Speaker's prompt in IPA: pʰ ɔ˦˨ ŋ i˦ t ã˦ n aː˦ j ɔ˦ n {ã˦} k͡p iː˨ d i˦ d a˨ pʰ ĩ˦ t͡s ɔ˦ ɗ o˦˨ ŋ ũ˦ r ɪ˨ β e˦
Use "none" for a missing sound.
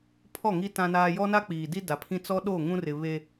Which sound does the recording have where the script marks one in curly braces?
a˦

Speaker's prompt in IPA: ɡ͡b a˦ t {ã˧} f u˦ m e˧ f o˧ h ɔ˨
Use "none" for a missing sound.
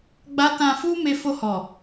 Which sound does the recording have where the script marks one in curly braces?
ã˧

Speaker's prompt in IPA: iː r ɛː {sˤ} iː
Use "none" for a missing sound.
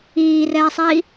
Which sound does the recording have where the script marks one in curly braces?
sˤ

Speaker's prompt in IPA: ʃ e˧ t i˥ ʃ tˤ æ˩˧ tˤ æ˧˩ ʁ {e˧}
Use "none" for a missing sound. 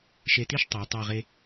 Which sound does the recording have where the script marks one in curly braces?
e˧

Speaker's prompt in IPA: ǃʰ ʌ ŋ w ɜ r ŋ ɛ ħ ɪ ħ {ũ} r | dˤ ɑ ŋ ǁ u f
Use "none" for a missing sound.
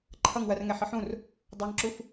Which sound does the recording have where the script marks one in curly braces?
ũ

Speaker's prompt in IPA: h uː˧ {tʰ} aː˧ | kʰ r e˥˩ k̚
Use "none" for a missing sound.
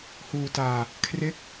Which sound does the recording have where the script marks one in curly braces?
t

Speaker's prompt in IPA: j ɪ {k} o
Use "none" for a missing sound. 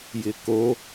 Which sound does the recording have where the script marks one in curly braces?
k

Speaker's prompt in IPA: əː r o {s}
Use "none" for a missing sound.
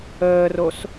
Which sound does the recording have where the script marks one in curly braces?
s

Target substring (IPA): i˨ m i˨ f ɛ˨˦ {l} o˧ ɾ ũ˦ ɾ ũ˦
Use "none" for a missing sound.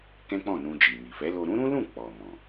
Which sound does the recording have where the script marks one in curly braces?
l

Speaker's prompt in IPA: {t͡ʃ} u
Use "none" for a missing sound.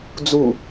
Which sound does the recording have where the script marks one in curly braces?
d͡z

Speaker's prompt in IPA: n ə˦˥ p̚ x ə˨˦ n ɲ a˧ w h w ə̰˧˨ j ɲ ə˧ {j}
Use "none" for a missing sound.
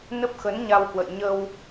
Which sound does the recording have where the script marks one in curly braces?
w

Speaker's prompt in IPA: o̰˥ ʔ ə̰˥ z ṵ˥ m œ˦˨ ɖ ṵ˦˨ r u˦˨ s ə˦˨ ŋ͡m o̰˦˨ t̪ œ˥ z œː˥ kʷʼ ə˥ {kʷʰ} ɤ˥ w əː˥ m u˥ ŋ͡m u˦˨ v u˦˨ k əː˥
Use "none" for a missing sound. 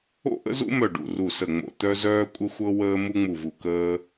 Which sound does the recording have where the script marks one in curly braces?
xʷ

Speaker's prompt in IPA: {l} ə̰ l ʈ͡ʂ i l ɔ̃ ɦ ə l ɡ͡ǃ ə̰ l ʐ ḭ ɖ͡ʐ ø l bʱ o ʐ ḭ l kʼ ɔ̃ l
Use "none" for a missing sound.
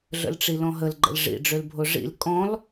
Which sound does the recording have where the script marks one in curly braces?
ɮ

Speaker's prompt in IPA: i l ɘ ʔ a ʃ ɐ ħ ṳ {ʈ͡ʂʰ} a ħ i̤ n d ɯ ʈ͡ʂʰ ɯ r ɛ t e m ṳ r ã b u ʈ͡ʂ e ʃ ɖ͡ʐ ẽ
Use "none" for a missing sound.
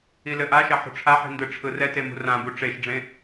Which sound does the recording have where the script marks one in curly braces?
ʈ͡ʂʰ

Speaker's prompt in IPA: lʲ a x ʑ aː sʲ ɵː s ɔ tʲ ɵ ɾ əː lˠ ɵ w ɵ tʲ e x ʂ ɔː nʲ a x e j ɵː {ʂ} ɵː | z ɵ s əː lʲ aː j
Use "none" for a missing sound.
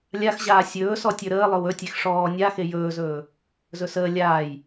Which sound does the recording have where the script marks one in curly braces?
z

